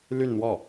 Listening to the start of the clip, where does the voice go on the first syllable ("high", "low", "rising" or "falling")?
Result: falling